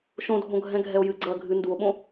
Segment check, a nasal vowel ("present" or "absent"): present